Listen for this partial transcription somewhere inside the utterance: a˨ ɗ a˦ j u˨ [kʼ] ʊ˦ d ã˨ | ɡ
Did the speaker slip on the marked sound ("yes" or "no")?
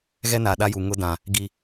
yes